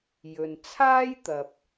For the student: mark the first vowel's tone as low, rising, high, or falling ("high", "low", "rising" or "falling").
low